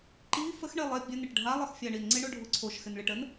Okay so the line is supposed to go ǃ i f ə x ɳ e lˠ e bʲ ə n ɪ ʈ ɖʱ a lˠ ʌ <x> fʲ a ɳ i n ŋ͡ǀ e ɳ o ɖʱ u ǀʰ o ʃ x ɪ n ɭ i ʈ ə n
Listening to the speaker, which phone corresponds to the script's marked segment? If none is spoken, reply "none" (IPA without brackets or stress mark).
x